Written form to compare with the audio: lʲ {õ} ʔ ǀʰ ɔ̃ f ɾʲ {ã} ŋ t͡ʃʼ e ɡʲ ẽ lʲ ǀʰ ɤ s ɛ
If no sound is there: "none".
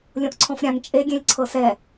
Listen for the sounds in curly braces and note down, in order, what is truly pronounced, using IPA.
õ, ã

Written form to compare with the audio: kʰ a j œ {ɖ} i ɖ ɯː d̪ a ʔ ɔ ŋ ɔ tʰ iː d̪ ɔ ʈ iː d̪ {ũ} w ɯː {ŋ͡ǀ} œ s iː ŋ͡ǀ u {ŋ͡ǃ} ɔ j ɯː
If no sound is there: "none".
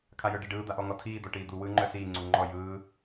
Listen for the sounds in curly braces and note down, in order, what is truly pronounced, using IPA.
ɖ, u, ŋ͡ǃ, ŋ͡ǃ

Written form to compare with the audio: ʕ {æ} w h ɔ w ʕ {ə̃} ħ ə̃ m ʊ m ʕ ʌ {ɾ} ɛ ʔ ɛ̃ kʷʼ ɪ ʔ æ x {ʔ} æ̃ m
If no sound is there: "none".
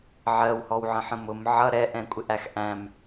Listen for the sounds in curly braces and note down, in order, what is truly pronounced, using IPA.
ɜ, ə̃, ɾ, ʔ

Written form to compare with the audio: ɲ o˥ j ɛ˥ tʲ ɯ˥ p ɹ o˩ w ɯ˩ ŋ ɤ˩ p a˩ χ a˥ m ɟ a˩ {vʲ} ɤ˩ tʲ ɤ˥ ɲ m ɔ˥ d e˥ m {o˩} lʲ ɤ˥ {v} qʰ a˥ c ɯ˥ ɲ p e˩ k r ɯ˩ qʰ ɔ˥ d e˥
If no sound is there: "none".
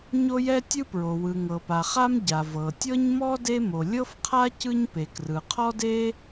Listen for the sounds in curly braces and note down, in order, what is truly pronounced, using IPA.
v, o˩, f

